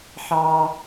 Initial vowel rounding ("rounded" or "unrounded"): unrounded